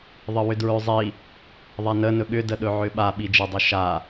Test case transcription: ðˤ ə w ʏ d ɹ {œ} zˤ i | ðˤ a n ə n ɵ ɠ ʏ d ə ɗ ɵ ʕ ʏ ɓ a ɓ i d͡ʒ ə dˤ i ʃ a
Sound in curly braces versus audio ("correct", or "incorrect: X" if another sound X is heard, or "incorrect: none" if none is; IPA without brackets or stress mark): incorrect: ø